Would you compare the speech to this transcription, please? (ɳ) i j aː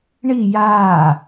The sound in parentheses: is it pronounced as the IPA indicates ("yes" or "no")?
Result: yes